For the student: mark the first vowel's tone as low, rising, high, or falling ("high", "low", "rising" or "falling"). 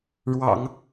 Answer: low